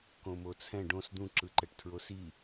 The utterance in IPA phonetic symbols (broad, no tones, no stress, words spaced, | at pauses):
kõmot͡sʰɛ̃ ɖõs d̪ũǁɯǃɛʈ tʰɹosi